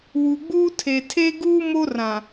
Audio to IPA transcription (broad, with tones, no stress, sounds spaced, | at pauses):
w u˨ ɡ͡b uː˦ tʰ e˨ tʰ e˦ ɡ uː˦ m o˦ r ã˨